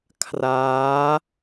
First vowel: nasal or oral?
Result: oral